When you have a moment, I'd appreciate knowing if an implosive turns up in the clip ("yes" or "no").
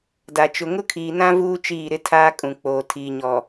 no